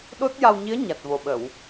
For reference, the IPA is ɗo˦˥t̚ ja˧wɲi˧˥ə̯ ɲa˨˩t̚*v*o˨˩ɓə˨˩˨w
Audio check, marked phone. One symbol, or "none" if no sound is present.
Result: v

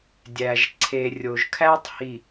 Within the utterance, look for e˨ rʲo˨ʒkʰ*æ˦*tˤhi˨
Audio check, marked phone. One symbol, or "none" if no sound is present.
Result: æ˦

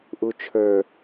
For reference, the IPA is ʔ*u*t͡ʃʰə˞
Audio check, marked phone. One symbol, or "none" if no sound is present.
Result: u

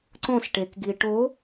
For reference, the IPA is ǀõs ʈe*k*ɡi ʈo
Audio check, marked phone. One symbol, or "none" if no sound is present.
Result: k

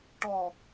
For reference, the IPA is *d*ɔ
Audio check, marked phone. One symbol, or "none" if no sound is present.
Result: ʈ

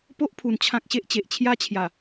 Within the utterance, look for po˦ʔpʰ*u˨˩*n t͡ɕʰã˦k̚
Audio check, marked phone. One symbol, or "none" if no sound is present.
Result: u˨˩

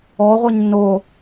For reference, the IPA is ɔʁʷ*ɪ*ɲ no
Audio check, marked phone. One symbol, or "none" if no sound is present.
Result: ɛ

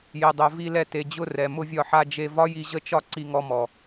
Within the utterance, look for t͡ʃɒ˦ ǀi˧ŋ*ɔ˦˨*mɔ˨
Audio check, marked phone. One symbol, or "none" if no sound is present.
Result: ɔ˧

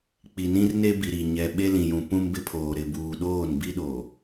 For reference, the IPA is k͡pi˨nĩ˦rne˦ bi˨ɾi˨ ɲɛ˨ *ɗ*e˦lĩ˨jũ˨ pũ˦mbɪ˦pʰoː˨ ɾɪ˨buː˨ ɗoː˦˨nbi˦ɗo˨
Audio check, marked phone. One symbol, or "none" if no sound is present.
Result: ɓ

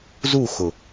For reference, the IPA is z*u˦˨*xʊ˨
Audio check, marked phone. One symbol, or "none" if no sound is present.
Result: u˦˨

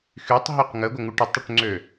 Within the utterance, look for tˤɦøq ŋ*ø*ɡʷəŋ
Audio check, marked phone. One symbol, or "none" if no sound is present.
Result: ə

